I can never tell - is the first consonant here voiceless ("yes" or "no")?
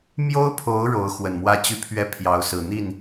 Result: no